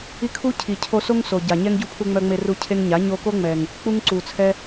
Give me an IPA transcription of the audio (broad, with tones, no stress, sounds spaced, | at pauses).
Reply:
i˦ kʰ u˦ cʰ i˨ cʰ o˧ s o˦ ŋ s o˨ ɟ a˨ ɲ ɛ˦ ŋ ɟ u˦ pʰ u˧ ŋ͡m œ˧ ŋ͡m e˧ r u˧ cʰ e˧ ŋ ɲ a˨˦ ɲ o˧ k o˦ ŋ͡m ɛ˨ ŋ | k͡p u˦ ŋ ǀ u˨ t͡sʰ ɛ˦